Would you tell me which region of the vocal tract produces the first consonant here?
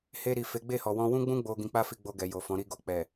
throat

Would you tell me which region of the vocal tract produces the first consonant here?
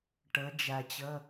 retroflex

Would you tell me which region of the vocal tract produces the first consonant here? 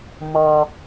lips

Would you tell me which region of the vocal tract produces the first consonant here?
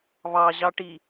lips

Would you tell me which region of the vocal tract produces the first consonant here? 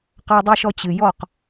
uvula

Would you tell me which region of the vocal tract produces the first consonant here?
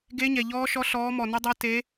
velum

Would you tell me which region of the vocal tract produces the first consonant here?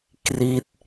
velum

